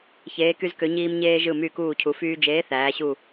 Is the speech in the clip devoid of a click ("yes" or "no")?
yes